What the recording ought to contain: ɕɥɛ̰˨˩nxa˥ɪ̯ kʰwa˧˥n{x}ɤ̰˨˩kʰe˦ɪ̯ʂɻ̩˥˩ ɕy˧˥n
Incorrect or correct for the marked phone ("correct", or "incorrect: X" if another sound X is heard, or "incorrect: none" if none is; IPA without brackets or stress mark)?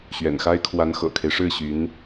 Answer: correct